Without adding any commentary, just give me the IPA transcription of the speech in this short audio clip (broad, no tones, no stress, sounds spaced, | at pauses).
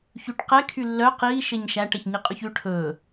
ç ʉ ʈ q ɛ kʰ y lː œ q iː ʃ e ɲ ʃ æ ʈ ɛ ç ɲ i qʼ ʉ ç ʉ ʈʰ ɵː